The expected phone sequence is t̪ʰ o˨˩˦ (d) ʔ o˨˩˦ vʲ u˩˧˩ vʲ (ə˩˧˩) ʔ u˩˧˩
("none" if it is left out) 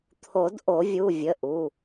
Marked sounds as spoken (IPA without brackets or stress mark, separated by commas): d, ə˩˧˩